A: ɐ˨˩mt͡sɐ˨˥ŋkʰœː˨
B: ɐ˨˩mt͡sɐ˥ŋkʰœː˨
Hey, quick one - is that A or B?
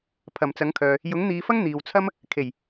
A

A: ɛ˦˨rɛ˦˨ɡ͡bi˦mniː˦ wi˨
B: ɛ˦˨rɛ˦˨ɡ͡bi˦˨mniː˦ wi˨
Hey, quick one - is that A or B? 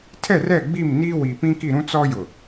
B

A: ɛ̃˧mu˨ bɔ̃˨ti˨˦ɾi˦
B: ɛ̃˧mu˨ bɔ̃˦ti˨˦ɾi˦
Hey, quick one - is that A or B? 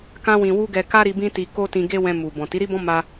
A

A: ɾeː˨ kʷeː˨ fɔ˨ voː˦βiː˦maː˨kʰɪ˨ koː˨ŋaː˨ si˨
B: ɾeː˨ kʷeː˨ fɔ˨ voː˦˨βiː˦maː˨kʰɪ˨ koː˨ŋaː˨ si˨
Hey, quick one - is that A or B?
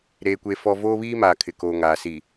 A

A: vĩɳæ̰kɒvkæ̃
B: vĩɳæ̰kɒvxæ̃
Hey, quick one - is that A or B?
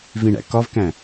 A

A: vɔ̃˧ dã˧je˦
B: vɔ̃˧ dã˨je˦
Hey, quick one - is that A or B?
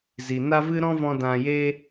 A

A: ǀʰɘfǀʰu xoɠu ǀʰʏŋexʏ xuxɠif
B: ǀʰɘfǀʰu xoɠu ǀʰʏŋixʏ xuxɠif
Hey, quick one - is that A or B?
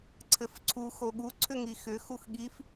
B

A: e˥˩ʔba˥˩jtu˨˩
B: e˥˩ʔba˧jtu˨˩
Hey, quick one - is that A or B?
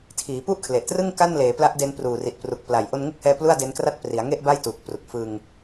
A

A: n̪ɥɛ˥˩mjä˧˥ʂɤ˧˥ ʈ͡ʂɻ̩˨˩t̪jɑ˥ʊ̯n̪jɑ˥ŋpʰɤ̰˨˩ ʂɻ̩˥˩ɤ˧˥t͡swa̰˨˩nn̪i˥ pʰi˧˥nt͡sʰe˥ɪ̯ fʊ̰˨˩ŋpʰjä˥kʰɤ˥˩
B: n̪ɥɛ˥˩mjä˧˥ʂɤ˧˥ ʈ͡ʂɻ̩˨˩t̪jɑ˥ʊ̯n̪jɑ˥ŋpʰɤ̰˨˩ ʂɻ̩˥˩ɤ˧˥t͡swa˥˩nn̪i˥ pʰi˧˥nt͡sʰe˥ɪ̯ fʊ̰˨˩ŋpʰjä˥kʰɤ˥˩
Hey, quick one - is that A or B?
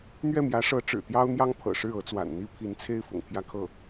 A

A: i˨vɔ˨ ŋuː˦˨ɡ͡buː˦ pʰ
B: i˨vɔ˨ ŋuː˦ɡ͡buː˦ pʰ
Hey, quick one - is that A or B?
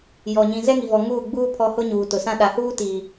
A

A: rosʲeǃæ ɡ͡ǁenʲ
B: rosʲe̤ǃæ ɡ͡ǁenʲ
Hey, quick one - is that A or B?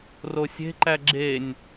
B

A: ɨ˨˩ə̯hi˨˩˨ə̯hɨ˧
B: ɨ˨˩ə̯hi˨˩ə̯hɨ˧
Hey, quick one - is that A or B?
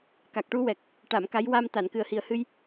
B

